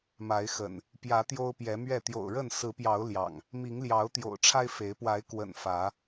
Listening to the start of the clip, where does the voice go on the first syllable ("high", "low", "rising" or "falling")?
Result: rising